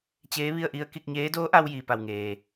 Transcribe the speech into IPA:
t͡ɕ eː˧˥ ʋ i˥˨ ə̯ ʔ i˧˥ ə̯ k i˧ k̚ ɲ eː˧˥ d oː˧˥ ʔ a˧ w j iː˩ p a˩ w ŋ eː˩

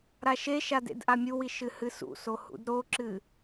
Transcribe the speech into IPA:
ɾ a ʃ e ʃ a d ḛ d ʔ a mʲ u w i ʃ ɨ h ɨ s ṵ s o h ṵ d ɾ o ǁ ɨ

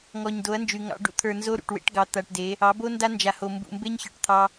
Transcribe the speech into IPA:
ŋ ɔ˨ ɲ d o˨˦ ɐ̯ n d͡ʒ y˨ ŋ ɑ̰˦ ɖ ṵ˦ t̪ʰ ə˞˨ n z o˦ ɾ ṵ˨ ʈ w ḛ˦ ʈ ɡ ɑ˨ t̪ a˨ ʈ d e˨˦ | ɑ˨˦ b o˦ n d a˦ n d͡ʒ a˨ h o˨ m b ṵ˨ m b e˦ ɲ ç ə˞˨ ʈ t̪ʰ ɑ˦

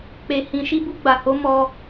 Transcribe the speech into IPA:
k͡p e˦ h ĩ˦ ʃ i˦ b u˦ ɡ͡b a˧ h o˦ m ɔ˦

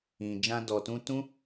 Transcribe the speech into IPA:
ĩ˨ d͡ʒ ã˧ d ɔ˨ t ũ˧ t ũ˦

